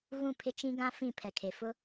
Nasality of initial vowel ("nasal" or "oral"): nasal